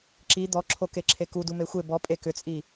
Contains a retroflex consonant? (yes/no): no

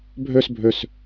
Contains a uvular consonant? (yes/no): no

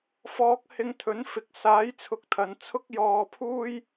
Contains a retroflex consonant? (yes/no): no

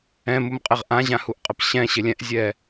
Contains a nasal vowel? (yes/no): yes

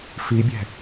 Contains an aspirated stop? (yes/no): no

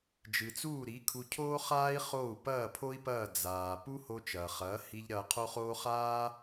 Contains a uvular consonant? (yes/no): yes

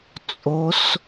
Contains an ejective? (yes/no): yes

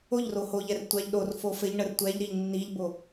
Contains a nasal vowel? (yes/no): no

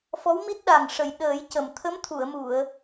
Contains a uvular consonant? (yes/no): no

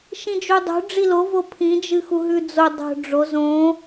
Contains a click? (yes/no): no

